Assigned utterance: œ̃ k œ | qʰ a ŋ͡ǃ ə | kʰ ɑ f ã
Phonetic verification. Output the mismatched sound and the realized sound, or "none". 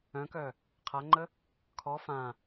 ɑ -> ɔ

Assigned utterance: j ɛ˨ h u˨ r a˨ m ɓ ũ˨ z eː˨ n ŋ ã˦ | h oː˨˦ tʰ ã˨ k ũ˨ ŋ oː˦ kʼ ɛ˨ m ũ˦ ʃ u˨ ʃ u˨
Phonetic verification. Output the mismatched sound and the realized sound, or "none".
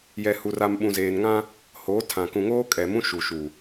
none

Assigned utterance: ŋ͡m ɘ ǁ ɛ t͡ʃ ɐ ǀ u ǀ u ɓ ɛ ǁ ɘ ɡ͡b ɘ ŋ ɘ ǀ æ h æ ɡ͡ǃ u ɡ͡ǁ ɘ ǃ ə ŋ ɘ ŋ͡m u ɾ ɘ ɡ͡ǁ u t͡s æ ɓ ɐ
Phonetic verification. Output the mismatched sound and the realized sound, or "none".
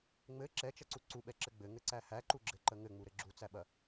ɡ͡ǃ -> ǃ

